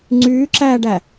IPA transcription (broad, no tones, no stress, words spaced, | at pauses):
ŋ͡ǀyːǁæːɖæ